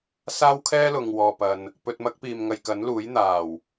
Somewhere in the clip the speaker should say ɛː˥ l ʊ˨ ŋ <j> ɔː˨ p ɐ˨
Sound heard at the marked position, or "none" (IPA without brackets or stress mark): w